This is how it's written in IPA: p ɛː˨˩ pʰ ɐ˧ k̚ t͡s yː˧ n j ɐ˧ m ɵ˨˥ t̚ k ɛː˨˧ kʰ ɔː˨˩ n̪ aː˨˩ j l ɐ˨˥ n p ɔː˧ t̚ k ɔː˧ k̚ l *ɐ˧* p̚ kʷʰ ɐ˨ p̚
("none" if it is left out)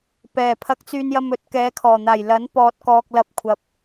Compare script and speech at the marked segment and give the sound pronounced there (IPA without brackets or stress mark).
ɐ˧